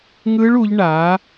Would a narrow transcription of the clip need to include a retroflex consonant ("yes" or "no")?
yes